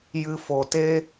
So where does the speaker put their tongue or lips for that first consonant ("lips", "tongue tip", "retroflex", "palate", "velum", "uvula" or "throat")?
palate